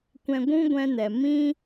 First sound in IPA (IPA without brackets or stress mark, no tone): kʷ